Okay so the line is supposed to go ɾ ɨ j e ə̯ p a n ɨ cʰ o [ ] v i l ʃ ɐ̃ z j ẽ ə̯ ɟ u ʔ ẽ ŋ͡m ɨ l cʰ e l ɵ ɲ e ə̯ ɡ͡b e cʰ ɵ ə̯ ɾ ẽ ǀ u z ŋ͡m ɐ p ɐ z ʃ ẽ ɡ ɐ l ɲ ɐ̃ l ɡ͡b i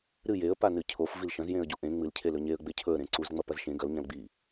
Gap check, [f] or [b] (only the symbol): f